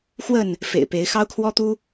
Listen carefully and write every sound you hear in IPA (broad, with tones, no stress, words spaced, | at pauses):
xwə˥˨n | fḛ˨˩ɪ̯pe˨˦ɪ̯ xɑ˦ʊ̯kʰwɔ˦t̪u˦